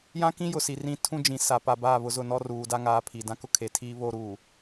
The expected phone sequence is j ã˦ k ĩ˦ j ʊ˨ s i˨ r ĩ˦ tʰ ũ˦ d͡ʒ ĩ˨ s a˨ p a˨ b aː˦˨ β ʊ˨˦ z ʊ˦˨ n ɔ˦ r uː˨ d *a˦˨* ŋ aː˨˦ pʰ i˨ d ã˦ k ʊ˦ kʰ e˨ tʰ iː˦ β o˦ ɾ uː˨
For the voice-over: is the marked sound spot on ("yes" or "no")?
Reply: no